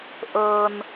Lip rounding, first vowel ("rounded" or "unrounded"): unrounded